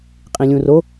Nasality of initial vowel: nasal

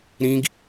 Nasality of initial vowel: nasal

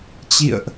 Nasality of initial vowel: oral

